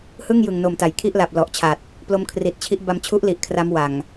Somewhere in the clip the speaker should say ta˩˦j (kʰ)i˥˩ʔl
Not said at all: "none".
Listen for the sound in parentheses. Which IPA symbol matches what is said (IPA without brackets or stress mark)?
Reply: kʰ